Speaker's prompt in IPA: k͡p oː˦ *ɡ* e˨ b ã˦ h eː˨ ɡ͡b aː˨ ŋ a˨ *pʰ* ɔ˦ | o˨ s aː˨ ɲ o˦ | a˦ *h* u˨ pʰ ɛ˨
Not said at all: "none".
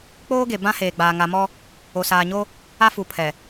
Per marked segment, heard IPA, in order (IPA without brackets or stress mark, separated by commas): ɡ, m, f